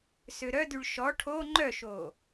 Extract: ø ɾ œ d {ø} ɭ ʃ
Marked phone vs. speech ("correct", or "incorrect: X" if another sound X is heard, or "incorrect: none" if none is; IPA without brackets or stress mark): incorrect: y